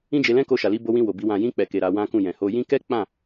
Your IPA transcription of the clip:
ĩ˦d͡ʒe˧lɛ̃˦ ko˧ʃa˨ li˨˦bo˧wĩ˧ wo˨bi˧ wã˨jĩ˧ k͡pɛ˨ke˨ ɾa˨˦wã˦ kũ˦˨ jɛ̃˨ho˧ jĩ˦ kɛ˦k͡pã˦˨

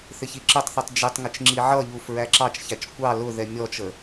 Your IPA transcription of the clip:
θɪçiǁətˤθitˤ d͡ʒɪtˤŋɪt͡ʃ ŋ͡ǁiʕʌʎuf ɹæǁɑt͡ʃçæt͡ʃ kʷɑ lʊðɛ mʲɔt͡ʃə

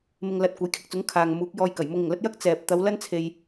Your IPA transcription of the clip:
mɪ˧ŋlɐ˧t̚ kʷɐ˨˥jkʰɪ˨˥k̚t͡sʊ˨˥ŋ kʰaː˨ŋmuː˨˥k̚ jɔː˧j kɐ˨˩jmʊ˧ŋɪ˨˩ŋlɐ˥t̚ jɐ˥k̚ t͡sɛː˨p̚t̪ɐ˨˧w lɐ˥nt͡sʰe˨j

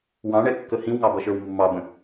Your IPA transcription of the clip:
wɑ̃ɳɛkːə hĩwŋɑbʌʃə˞w mːɑbə̃

